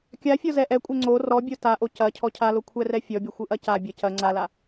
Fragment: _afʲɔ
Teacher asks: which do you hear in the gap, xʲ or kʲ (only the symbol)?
kʲ